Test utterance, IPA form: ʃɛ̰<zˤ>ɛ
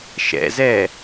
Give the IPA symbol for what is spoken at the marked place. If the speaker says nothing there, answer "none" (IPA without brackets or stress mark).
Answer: z